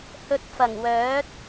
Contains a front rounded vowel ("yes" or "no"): yes